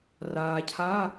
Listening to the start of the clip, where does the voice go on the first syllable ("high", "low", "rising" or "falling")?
low